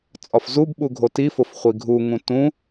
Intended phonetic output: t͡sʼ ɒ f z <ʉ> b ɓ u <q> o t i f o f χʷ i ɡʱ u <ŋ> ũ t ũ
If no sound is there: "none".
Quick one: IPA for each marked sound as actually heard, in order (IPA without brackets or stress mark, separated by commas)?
u, ɡʱ, ŋ